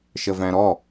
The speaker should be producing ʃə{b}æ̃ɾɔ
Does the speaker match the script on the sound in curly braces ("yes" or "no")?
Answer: no